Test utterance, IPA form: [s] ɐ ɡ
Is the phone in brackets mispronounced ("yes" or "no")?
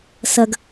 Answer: no